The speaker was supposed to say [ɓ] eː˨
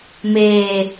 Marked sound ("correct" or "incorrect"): incorrect